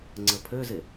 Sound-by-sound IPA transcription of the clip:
ŋ͡ǀ ə pʰ ø z e

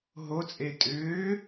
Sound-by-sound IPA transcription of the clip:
ɦ o t͡sʼ e tʼ ʏː

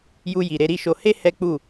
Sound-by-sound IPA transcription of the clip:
j u˧ j i˨ ɾ e˨˦ ɾ i˦ ʃ o˧ h e˦ h ɛ˦ k͡p u˦˨

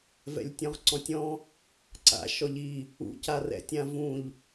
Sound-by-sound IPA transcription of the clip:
v ɛ̰ lʲ tʲ ɔ̃ ʁ ǀ ɔ̃ tʲ ɔ̃ | ǀ a̰ ʃ ɔ ʎ i | ṵ c a r ɛ̰ tʲ ã v ũ ʎ

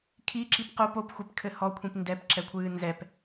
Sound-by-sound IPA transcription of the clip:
kʰ i ǁ i p q o p o p xʷ e p kʰ ɘ h ɔ kʷʰ ĩ p n d ɛ p ǁ ɛ kʷʰ ɨː n z ɛ p

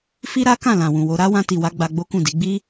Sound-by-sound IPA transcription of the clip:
f i˦ ɾ a˦ k ã˦˨ l ã˨ w ũ˨ w o˨˦ ɾ a˦ w ã˧ t i˨ w a˨˦ ɡ͡b a˧ ɡ͡b o˦ k ũ˦˨ d i˨˦ ɡ͡b i˦

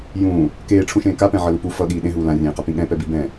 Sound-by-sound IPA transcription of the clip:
j ũː | k eː ʈ͡ʂʰ ũ ʃ ẽː k a p ɛ̃ ʕ ʌ l u p u f ʌ ɠ iː ɗ ẽ ɦ uː l ã rʲ ẽː q a p ĩ ɠ ɛ̃ p ɛ b i b ɛ̃

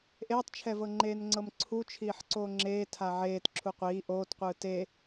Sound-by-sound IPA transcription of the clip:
ʔ eː tˤ t͡ʃʰ ɛ v ɤ ŋ͡ǃ eː n ŋ͡ǀ ɤ m ǀʰ u t͡ʃʰ iː ħ ǀ oː ŋ͡ǁ eː tʰ a ʕ eː t ǁʰ u qʷ iː ʔ oː t qʷ ɯː t e

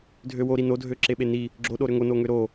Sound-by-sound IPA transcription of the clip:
dʱ ø w o ɾ i n o dʱ ø ǁ e ɓ e n i | ɡ͡ǁ o ɗ o ɾ ø ŋ o n o ŋ ø ɾ o

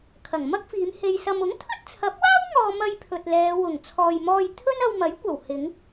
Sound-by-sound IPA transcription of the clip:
kʰ ɐ˨˩ ŋ m ɐ˥ k̚ f iː˨˧ m h e˧ j s ɐ˧ m ʊ˨˥ ŋ t̪ʰ ɵ˥ t̚ t͡sʰ ɐ˨˥ p̚ w aː˥ w ŋ ɔː˧ m ɐ˧ j pʰ ɵ˨ t̚ l ɛː˨˧ w ʊ˨˩ ŋ t͡sʰ ɔː˨ j m ɔː˧ j t̪ʰ ɵ˥ n ɐ˧ w m ɐ˨˥ j kʷ ɐ˨˩ w h ɪ˨˧ ŋ

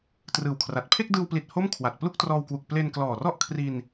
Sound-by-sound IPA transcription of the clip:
t r ɯː˨˩ w kʰ r a˨˩ t̚ pʰ e˥˩ k̚ d ɯː˧ w p l i˨˩ t̚ h o˥˩ m kʰ w a˨˩ t̚ p l u˥˩ k̚ t r ɔː˧ w k w u˨˩ k̚ p l e˧ n k l ɔː˨˩ r ɔ˥˩ ʔ kʰ r i˧ n

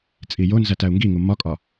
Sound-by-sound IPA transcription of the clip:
t͡sʼ i j o n z æ t æ u̯ ŋ ɡ i ŋ u m ɒ kʼ ɒ

